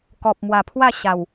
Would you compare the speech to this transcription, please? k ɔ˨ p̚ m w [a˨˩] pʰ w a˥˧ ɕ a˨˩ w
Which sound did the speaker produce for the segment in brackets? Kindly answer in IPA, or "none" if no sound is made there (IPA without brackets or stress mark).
a˨˩